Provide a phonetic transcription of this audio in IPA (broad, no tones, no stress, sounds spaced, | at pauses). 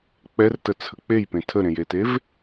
k͡p ɛ r t ə t͡sʰ ə k͡p e j p ẽ tʰ ə ɾ ẽ j e t e v